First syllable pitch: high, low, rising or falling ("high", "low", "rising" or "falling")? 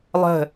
falling